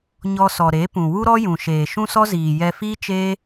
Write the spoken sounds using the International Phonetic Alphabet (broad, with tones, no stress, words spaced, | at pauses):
ɲɔ˧sɔ˨ɾe˨˦ pũ˨ wu˦ɾɔ˦ jũ˨ʃeː˨ ʃũ˦sɔ˦ziː˨ jɛ˧fiː˦t͡ʃeː˦